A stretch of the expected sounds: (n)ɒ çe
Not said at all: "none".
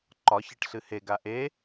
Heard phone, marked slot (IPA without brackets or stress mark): ǃ